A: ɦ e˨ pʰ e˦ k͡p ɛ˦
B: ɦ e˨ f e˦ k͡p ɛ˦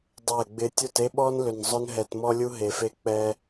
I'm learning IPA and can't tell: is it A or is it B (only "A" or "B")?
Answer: B